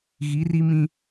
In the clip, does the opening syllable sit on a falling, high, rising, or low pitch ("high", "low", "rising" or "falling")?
rising